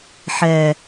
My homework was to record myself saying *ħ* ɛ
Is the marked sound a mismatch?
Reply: no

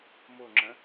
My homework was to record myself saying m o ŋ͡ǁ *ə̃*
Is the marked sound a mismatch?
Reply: no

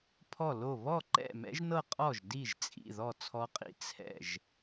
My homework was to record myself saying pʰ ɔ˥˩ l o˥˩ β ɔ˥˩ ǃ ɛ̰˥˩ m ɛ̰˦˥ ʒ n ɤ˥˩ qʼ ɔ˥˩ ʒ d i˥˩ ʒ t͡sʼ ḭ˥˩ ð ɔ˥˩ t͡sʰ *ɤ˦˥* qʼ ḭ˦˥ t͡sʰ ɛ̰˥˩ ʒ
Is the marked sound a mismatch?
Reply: yes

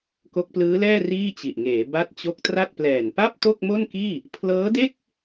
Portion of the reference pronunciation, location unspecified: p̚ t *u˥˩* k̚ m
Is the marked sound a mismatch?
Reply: yes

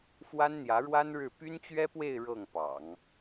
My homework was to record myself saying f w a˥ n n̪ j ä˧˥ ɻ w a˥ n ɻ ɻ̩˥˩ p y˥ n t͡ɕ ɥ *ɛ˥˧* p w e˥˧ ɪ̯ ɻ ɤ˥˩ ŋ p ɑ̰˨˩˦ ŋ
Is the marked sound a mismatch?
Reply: yes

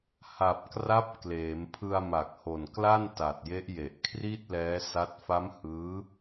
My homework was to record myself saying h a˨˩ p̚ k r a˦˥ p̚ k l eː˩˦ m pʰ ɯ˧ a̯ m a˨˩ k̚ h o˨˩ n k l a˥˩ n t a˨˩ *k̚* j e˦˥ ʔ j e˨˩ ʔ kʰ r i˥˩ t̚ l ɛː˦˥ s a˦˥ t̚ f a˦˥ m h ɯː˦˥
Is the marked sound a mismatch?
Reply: yes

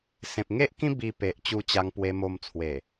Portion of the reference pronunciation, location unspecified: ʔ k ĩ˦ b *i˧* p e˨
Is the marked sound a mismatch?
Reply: no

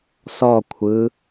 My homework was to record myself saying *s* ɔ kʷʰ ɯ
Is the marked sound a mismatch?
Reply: no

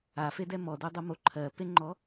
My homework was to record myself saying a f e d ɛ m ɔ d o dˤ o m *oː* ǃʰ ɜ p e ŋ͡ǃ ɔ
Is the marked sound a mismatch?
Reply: yes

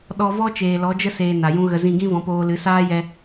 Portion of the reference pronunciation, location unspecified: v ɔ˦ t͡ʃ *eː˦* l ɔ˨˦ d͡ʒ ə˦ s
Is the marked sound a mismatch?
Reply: yes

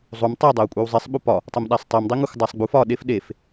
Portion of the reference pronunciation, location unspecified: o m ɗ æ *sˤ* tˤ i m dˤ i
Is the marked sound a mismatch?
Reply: no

